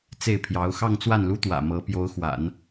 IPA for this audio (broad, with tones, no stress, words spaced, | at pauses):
t͡se˥˩ɪ̯pʰjɑ˧˥ʊ̯ xɑ˥˧ŋt͡swa˥˩nlu˥t̪wä̰˨˩ mɤ˧˥ pjo˧˥ʊ̯xwa̰˨˩˦n